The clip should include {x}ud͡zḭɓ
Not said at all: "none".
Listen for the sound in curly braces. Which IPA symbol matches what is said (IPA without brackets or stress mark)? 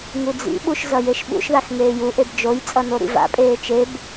ŋ